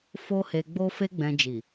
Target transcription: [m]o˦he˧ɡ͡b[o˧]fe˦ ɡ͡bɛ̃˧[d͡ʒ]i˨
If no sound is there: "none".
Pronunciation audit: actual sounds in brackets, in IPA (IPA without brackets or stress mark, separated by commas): f, o˦, d͡ʒ